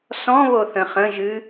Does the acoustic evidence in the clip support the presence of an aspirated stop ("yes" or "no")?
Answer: no